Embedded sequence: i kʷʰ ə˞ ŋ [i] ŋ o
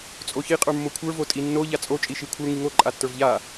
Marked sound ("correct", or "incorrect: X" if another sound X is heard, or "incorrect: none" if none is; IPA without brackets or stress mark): correct